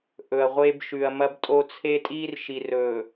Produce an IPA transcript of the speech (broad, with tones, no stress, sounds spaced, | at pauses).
ʔ ɵ˨ ɐ̯ ʁʷ e˦ b ʃ ʉ˨ ɐ̯ m ɐ˦ b tʼ o˦ t͡sʰ e˦ tʼ iː˦ r ʃ i˨ r ɵː˨